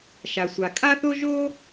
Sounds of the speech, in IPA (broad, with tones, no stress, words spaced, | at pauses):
ʃa˩sʷa˩kʼa˥θo˥ ʒo˥